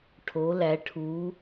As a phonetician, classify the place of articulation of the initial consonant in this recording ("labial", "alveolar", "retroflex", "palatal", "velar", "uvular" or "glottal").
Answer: retroflex